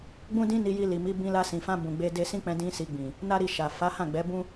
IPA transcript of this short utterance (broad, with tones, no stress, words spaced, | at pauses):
ɡ͡bũ˦dĩ˦ni˧ ji˧li˨mi˨˦ bĩ˧la˧sĩ˨fã˧ bũ˨ɡ͡be˧ de˧sĩ˦k͡pɛ̃˧ dĩ˦ si˧ɡ͡bĩ˨ | na˦ɾi˧ ʃa˨ fa˨˦hã˦˨ ɡ͡bɛ˨˦bũ˦